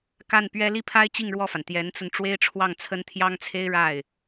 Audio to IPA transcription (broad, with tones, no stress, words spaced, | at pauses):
ka˥˩npɥɛ˥ li˥˩pʰa˥ɪ̯ t͡ɕi˥˧ŋɻwɔ˥˩fa˩n t̪jɛ˧˥nt͡sə˧n ʈ͡ʂwe˥ɪ̯ʈ͡ʂʰwɑ˥˩ŋt͡sʰə˥n t̪ʰjɑ˥ŋt͡sʰe˥ɪ̯ ɻa˥˩ɪ̯